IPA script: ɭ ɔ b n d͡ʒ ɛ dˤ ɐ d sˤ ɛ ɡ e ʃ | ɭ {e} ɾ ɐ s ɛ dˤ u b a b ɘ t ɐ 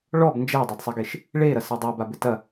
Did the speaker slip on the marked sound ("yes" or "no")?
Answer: no